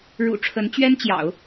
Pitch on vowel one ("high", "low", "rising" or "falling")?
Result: low